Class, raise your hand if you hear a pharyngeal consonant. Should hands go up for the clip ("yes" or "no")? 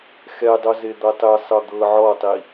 yes